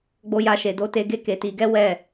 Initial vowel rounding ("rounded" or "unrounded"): rounded